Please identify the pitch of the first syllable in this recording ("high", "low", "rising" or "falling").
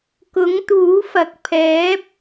rising